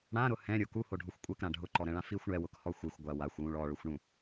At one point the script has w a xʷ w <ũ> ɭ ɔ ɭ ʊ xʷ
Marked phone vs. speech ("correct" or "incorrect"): correct